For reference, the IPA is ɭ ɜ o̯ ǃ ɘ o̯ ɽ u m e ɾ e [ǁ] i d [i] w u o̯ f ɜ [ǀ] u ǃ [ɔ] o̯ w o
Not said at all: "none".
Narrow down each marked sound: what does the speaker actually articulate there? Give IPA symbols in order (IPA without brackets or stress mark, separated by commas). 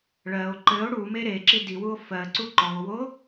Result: ǁ, i, ǀ, ɔ